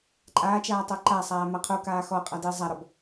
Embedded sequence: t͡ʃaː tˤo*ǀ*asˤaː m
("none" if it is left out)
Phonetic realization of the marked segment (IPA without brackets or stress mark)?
ǃ